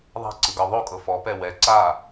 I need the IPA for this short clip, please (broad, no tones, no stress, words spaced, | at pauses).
ðˤa̤ǀɯɡɤ ðˤokʼɤ fɔpɛ wɛ ǀa